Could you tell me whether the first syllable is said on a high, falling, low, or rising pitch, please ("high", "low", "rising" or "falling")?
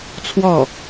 falling